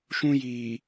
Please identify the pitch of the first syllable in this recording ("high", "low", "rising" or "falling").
high